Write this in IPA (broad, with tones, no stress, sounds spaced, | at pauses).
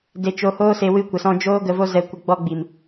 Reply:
d e˧ t͡ʃ o˧ h oː˦ s e˧ w ɨ˧ kʷ ə˨ s ɔ̃˧ d͡ʒ oː˦ ɡ ə˧ v o˦ z ɛ˧ kʷ ə˧ ɡ͡b ɔ˧ ɡ͡b i˨ m